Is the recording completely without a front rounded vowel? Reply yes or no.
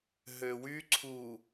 no